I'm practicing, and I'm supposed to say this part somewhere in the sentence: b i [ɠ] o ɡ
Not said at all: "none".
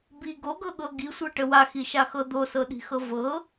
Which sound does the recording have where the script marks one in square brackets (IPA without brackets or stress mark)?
ɡ